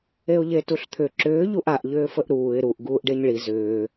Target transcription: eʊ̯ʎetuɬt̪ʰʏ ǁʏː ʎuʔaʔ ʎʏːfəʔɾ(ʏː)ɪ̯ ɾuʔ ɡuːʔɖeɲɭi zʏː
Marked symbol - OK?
no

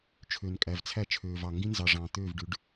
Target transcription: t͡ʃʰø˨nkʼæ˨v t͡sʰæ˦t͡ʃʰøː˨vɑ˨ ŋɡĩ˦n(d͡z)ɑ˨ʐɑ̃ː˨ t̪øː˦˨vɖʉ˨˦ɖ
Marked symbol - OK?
no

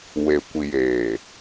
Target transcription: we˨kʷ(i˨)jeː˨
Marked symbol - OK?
yes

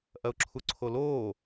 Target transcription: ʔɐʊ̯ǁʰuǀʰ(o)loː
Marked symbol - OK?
yes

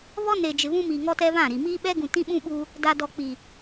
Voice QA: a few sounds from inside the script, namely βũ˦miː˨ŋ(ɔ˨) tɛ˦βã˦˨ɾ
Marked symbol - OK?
no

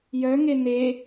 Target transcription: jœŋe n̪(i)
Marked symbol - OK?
no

